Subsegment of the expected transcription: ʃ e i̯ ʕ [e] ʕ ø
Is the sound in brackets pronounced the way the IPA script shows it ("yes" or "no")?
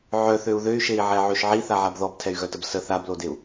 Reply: no